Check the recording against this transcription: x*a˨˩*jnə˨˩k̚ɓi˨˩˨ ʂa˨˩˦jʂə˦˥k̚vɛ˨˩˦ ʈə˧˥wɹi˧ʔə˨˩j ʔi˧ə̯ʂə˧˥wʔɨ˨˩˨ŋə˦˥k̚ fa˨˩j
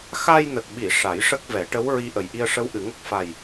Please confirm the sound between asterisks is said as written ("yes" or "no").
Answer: no